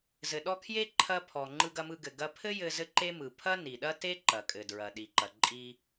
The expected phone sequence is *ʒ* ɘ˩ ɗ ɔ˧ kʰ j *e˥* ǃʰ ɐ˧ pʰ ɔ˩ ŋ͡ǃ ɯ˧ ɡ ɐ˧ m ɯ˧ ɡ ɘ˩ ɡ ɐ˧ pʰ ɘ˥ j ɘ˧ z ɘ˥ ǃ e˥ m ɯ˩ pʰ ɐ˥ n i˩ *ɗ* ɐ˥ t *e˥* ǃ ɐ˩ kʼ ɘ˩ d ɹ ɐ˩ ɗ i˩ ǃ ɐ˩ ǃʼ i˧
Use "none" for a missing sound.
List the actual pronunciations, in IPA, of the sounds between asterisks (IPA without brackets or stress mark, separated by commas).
z, e˥, ɗ, e˥